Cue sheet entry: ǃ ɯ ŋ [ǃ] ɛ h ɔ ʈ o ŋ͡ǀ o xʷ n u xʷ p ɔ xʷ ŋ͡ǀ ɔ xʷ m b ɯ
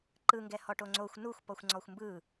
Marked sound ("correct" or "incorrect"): incorrect